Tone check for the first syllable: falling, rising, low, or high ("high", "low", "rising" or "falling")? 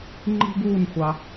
high